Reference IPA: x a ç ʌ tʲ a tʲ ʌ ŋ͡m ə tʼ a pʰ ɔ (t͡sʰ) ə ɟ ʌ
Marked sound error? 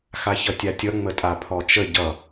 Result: yes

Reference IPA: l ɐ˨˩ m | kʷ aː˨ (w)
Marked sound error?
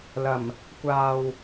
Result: no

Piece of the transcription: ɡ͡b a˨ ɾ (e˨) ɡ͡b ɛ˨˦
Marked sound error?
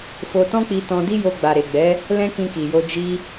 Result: no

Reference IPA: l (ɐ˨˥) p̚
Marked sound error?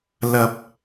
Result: yes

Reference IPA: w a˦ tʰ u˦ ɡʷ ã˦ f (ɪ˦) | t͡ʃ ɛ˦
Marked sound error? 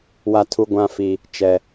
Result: yes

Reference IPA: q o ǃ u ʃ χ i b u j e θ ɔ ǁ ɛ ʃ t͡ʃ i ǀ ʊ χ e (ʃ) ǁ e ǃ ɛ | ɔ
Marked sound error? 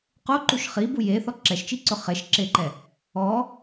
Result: no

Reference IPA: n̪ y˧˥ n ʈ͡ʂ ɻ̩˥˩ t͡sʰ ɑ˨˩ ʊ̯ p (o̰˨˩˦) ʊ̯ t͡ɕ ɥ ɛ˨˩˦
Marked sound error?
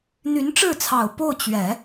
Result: yes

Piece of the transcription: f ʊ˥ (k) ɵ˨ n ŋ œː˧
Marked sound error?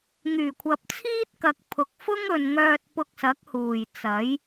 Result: yes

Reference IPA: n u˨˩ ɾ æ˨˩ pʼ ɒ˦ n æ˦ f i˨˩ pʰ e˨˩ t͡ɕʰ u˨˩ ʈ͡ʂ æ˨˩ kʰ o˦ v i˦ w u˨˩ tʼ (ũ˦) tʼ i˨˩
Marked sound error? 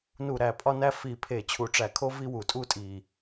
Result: yes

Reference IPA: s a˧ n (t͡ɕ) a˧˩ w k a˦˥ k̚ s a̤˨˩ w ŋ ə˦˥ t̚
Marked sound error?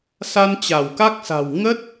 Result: no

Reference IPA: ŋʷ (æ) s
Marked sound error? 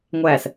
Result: no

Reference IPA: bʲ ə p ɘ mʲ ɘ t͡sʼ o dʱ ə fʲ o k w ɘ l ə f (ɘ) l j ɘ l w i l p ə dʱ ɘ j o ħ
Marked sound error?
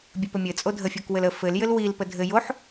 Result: no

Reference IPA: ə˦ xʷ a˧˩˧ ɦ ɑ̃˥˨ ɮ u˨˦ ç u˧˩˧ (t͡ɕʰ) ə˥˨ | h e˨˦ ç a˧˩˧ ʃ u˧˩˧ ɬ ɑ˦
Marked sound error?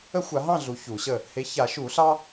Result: yes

